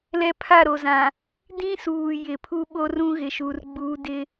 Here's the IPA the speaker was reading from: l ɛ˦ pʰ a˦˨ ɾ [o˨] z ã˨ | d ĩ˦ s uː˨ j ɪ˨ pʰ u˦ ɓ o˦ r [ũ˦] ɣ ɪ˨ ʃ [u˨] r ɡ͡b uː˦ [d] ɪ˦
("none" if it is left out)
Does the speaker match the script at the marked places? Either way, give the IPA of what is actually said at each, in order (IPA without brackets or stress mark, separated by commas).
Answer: o˨, ũ˦, u˨, d